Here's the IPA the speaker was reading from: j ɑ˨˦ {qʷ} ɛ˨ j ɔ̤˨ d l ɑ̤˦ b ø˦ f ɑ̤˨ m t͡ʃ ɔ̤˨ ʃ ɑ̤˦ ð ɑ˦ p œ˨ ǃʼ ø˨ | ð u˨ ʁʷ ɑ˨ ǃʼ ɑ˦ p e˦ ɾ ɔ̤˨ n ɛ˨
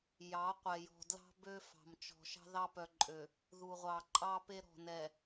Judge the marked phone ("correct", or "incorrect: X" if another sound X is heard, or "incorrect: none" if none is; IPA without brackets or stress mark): correct